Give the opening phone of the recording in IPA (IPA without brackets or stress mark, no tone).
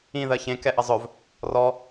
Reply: ĩ